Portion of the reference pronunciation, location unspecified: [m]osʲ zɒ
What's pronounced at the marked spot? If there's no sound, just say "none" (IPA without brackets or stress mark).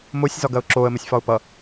m